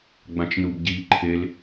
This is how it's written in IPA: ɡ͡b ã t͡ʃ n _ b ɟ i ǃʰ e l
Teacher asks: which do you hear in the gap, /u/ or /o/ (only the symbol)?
u